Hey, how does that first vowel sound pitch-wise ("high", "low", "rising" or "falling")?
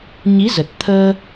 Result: rising